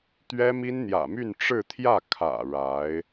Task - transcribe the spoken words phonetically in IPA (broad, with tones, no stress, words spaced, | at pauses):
t̪ɥɛ˥mi˥n n̪jä̰˨˩my˥˧n ʈ͡ʂɻ̩˥˧ t̪ʰjä˥˩ kʰä̰˨˩ ɻa˧˥ɪ̯